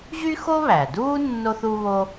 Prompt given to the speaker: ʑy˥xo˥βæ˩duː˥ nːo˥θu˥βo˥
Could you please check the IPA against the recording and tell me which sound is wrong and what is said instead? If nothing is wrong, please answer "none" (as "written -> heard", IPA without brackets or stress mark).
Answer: none